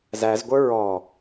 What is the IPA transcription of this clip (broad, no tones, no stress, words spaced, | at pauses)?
zæzɡʷə˞ ɹɔ